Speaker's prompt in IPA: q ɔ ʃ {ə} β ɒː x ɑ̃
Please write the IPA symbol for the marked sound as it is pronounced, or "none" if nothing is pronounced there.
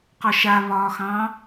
a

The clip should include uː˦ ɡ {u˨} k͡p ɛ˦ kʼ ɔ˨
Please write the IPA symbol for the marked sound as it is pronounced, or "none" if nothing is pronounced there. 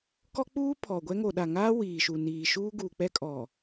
uː˨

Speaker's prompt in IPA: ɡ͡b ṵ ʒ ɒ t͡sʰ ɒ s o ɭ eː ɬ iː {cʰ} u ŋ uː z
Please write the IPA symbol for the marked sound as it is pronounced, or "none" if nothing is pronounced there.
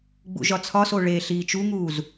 t͡ʃ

